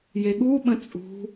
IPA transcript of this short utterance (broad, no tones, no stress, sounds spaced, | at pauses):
j e ɠ u ɓ ə̃ t͡sʼ ṳ